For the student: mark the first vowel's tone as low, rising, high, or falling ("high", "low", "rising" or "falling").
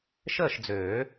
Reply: falling